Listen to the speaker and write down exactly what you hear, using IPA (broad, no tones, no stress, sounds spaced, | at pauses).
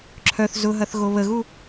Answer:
ǁʰ œ θ z ʊ ɦ ɐ θ ɣ o β ə ɣ u